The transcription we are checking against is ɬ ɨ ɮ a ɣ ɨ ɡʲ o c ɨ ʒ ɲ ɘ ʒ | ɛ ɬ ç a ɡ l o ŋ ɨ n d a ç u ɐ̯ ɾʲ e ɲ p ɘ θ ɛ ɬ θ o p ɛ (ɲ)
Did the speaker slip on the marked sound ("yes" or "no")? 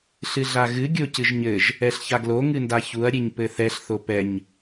no